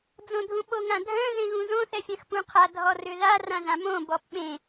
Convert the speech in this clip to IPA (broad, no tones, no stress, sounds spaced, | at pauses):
d͡z õ dʱ ũ ɓ o ŋ ã dʱ œ̃ ð ẽ ɣ ũ z õ θ ɛ fʲ ã x p ũ qʰ a dʱ ɔ r ʏ ð a r ã z ã m õ b ɔ p ɓ ẽ